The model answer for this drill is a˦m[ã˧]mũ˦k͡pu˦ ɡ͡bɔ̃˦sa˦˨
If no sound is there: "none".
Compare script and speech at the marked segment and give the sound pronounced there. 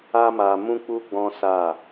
a˧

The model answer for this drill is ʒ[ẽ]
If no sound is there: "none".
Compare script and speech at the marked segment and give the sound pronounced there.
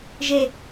e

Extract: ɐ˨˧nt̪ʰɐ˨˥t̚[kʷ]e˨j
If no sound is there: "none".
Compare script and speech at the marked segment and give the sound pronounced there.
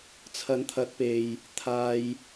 p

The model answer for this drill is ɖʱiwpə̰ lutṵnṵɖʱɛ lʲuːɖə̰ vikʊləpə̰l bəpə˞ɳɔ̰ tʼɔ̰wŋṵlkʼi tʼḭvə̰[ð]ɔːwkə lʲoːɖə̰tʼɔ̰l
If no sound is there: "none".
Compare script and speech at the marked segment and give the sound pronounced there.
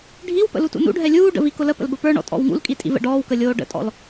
ɖ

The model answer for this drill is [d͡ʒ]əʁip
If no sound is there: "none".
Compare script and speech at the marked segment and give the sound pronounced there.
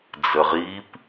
d͡z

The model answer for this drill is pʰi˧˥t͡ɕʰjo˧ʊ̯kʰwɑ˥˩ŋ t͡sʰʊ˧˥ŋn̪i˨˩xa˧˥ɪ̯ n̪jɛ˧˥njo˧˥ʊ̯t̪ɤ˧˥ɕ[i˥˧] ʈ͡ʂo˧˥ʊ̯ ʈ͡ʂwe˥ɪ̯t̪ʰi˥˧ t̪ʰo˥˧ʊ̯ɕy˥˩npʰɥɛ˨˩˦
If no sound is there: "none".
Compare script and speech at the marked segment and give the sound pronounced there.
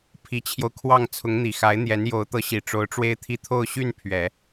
i˨˩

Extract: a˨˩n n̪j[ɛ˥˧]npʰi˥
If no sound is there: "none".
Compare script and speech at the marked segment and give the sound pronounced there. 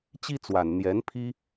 ɛ˧˥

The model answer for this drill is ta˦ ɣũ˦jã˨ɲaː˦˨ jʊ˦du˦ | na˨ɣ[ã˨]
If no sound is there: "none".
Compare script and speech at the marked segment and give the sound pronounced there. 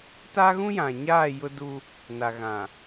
ã˨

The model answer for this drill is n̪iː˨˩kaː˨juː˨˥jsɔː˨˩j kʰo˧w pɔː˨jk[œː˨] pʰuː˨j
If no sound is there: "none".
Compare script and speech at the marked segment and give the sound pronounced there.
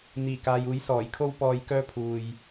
œː˧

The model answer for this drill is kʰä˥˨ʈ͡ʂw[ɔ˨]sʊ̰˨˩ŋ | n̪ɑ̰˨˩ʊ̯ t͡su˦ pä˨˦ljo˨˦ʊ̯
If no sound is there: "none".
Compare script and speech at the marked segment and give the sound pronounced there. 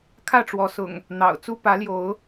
ɔ˨˦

